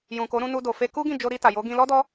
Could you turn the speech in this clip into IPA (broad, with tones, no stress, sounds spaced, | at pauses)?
j ũ˨ k o˨˦ ɾ ũ˧ n u˧ d o˨ f e˧ k u˦ ɡ ĩ˦˨ d͡ʒ o˧ ɾ i˧ t a˨ j o˨˦ ɡ ĩ˧ l ɔ˦ d ɔ˦